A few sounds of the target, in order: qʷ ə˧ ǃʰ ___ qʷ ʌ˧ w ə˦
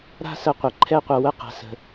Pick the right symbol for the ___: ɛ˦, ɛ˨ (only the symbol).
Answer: ɛ˦